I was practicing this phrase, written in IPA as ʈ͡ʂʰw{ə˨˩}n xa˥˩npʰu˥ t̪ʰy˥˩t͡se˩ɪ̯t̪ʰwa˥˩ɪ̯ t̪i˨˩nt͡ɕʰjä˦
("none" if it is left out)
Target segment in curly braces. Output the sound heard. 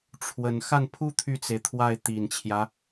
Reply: ə˨˩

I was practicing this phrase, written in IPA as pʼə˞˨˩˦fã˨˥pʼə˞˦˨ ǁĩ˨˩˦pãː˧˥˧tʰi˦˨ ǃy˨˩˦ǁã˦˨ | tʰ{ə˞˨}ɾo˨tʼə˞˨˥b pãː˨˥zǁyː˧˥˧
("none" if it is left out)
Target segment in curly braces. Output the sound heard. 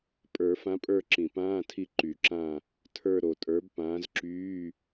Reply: ə˞˦˨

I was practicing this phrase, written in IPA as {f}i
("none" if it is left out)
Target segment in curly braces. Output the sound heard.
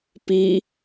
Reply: p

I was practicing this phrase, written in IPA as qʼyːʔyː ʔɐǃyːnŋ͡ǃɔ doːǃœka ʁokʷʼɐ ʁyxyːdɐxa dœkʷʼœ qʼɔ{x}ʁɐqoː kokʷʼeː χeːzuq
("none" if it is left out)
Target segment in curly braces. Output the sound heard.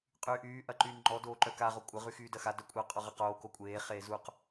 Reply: none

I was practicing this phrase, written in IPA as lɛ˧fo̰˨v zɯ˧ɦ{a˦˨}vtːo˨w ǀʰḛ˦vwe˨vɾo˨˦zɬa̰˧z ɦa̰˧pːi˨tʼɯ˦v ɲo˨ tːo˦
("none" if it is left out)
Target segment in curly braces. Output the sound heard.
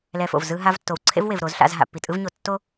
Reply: a˧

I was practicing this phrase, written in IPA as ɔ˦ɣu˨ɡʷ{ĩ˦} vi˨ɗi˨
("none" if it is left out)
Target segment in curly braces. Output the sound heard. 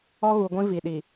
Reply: ĩ˦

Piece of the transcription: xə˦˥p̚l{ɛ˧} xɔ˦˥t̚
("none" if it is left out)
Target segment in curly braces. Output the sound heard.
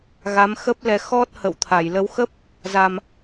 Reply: ɛ˧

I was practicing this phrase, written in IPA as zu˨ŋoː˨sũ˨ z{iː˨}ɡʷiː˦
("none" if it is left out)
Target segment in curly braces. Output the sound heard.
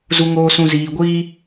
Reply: iː˨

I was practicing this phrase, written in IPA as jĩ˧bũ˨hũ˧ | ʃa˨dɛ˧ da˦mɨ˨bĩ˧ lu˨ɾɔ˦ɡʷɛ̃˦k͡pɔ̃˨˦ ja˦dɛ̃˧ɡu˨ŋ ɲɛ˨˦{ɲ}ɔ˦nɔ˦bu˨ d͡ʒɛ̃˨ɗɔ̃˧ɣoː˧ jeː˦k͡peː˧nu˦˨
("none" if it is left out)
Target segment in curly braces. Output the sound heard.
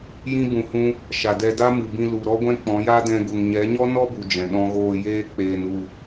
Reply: ɲ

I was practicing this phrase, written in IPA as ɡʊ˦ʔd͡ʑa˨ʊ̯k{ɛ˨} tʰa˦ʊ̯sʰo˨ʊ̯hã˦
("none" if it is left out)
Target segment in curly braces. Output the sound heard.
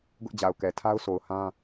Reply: ɛ˨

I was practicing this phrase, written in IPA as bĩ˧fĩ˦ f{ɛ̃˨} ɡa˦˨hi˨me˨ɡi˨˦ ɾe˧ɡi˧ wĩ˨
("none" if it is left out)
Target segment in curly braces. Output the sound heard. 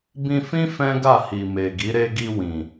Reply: ɛ̃˦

